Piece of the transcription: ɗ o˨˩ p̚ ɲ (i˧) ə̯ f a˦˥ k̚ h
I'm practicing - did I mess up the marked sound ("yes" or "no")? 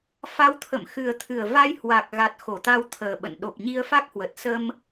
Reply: no